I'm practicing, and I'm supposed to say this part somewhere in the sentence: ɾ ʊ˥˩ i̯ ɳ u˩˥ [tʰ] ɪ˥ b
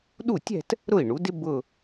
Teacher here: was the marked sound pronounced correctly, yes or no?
no